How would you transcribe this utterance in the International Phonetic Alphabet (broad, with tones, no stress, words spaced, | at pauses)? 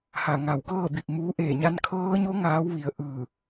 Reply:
ha˧˩ ŋa˧˩wkɤː˥˨bi˧˩p̚muː˧˥ ʔeː˧˩ɲa˧nkʰɤː˧˥ɲo˧˥ ŋaː˧˥wʋi˩˧ə̯ ʔɯː˧˩